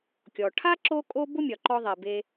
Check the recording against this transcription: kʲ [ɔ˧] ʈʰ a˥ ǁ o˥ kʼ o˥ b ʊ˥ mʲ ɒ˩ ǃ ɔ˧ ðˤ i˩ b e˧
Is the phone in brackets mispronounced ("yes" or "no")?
yes